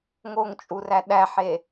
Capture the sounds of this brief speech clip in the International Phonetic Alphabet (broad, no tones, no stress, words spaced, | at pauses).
ŋoŋt͡ʃʼuræ ɗæħe